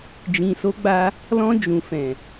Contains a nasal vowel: yes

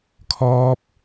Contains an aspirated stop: yes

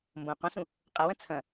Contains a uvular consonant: yes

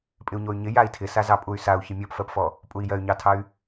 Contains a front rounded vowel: yes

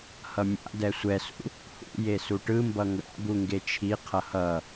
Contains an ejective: no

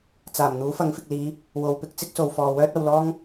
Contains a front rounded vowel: yes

